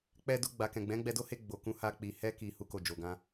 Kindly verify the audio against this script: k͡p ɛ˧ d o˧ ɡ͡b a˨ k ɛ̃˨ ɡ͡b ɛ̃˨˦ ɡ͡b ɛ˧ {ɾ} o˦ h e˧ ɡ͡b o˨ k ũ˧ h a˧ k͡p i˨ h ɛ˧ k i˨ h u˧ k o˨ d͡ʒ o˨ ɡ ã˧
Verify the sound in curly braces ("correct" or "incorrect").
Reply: incorrect